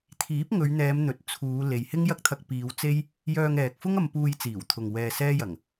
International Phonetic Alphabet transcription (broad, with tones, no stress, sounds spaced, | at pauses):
t̪ʰ iː˨˥ p̚ ŋ ɵ˨˧ ɥ n̪ ɛː˨˧ m n̪ ɵ˨ t̚ t͡sʰ uː˨˧ l e˨ j h ɪ˥ ŋ j ɐ˥ k̚ t̪ʰ ɐ˧ k̚ p iː˨˧ w t͡s e˥ j | j œː˧ ŋ ɛː˨ k̚ f ʊ˥ ŋ ɐ˧ m p uː˧ j t͡s iː˨˩ w t̪ʰ ʊ˨ ŋ w ɛː˧ s ɛː˥ j ɐ˨˩ ŋ